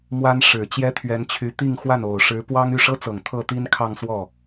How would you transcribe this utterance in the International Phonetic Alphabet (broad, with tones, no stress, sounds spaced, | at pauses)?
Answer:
m w a˥ n ʂ ɻ̩˨˩ t͡ɕ j ɛ˥ t̪ʰ ɥ ɛ˧˥ n t͡ɕʰ y˧˥ t̪ i˥˧ ŋ x w a˥˩ n o˨˩ ʊ̯ ʂ ɻ̩˧˥ p w ɑ˥ ŋ y˥˩ ʂ ɤ˥ t͡s ɤ˨˩ ŋ t̪ʰ ɤ˥˩ t̪ i˥ n kʰ ɑ˥˧ ŋ s w ɔ˥˩